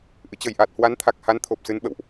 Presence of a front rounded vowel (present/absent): absent